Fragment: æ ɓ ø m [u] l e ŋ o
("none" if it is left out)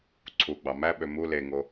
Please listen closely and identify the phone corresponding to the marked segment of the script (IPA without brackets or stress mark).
u